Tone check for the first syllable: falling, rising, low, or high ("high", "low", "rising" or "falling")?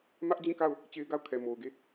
high